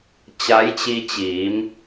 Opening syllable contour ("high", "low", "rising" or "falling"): rising